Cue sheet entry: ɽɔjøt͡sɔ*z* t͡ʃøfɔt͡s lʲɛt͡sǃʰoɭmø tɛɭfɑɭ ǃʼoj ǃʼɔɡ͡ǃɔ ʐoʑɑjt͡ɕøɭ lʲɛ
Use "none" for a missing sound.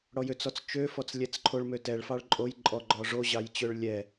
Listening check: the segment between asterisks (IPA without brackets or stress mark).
t͡s